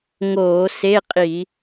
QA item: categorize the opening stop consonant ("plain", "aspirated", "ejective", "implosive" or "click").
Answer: ejective